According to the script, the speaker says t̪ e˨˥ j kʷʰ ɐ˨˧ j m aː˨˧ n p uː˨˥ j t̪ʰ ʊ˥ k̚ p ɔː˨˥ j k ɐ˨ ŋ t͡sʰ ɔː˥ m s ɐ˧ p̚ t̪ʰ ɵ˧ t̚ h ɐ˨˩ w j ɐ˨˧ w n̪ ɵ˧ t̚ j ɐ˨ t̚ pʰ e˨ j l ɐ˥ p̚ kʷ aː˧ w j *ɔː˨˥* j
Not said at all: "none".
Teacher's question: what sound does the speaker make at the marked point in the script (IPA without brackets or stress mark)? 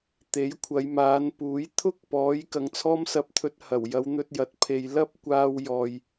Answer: ɔː˨